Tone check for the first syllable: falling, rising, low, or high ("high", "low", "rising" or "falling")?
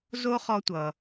high